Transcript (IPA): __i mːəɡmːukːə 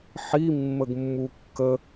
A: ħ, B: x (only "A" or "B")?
A